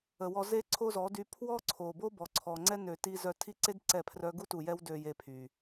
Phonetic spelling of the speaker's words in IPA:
ə˨wɔ˧ze˦ ǀʰo˦zɔ˨˦dy˧ pʰwɔ˦ǀʰo˨bo˦ bɔ˨ǀʰɔ˨ŋ͡ǀɛ˦ nø˨ ti˧zœ˧tʰi˦ǀe˦d ǀɛ˦˨pʰrœ˦ ɡu˦tu˨jɛ˦w dø˧je˧ pʰy˨

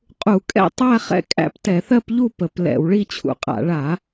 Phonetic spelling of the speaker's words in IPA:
qʼu˧˩˧kʼɛ̰˥˧tˤæ˥˧ χɛ̰˥˧kʼæ̰˥˧p tɛ˧˩˧θɜ˥˧pʎu˥˧ pə˧˩˧plɛ̰˧˩˧w ɭi˥˧t͡ɕʰṵ˨˥qʼa̰˧˩˧ ɭa˧˩˧

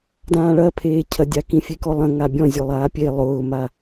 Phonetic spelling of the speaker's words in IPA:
dãːɭɐpʰeː cʰɐdʲakĩfʲe kɔlˠɐ̃ ŋabʲɔ̃ zʲʊlˠaːpʲe lˠʊːma

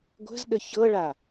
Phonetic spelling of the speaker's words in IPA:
ɡʷə̤zɗə çɤɭa

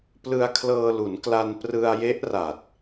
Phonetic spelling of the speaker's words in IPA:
plɯ˧a̯kʰlɤː˧lu˩˦n kla˧nprɯ˧a̯je˦˥ʔra˨˩t̚

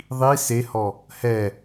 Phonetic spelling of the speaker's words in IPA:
ðˤi sehɔ | hɛ

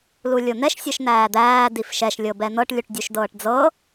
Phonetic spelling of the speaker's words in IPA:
lulʲon̪ɛʃ sʲɤʃn̪æːd̪æː difʃɛʃ lʲɤbɛn̪ɤʈ lʲuʈdʲuʃdɤːʈd͡zɤ

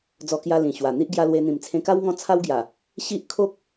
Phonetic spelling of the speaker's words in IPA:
d͡zɔ˧kja˧ lĩ˨˩ɕwa˨˩ n̪i˦ʔ ɡja˧lwe˧n̪ĩ˨˩m t͡sʰẽ˧ka˦w ŋɔ̃˦ t͡sʰa˦w ɡja˨˩ | ɕi˦ʔ kʰo˦k̚

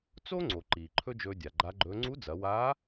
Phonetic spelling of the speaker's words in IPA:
t͡so˥ŋ͡ǀo˩ ǃiː˩ǃʰɵ˥d͡ʒɵː˧ dʲa˩ɡ͡ǃa˧˥ɡ͡ǃɵː˧˥ ŋ͡ǀu˧˥d͡zɐ˩˧waː˧˥

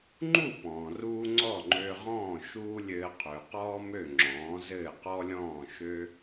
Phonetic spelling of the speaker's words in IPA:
ŋ͡ǃu˥˩pɔ̃ː˩ruː˧ ŋ͡ǀɔ˥˩ŋ͡ǃø˧ʁɔ̃ː˥˩ ʃuː˥lʲɘː˧ qʰø˩qɔː˥mø˥˩ ŋ͡ǁɔ̃ː˩˥zɘː˥˩ qɔ˥lʲɔ̃ː˥˩ʃø˥

